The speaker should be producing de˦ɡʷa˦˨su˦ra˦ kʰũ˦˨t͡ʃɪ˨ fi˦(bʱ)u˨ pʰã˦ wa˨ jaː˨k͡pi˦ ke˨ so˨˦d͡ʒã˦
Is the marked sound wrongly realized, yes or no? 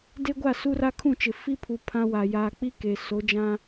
yes